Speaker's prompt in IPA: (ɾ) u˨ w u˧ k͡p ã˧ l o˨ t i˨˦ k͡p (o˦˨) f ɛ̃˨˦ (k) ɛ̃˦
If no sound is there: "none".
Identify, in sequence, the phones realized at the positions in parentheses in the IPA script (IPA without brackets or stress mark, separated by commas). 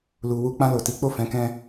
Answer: l, o˦˨, k